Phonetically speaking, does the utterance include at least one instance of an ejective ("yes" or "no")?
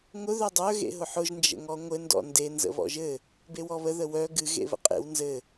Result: yes